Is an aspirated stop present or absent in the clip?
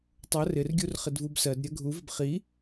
absent